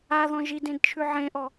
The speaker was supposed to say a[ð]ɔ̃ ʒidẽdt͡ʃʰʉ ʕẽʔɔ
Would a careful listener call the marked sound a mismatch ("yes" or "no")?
no